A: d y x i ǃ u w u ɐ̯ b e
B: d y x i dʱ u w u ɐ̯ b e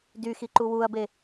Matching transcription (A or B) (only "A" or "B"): A